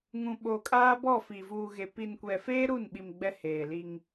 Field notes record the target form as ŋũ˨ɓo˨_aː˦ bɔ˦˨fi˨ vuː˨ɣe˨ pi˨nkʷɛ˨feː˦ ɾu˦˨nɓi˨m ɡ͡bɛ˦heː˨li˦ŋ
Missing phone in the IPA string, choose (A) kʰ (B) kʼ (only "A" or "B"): B